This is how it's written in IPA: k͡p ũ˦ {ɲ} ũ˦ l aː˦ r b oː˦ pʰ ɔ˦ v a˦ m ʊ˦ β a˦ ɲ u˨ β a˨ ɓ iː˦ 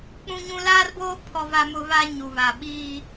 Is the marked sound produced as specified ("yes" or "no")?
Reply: yes